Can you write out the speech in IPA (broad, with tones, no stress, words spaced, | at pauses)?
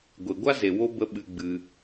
ɡʷe˨ɡʷa˦ze˨ wo˦ bə˧ ɓɨ˧ɡ͡bɨ˧